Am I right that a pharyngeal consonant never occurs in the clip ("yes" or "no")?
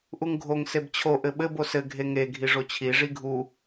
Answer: yes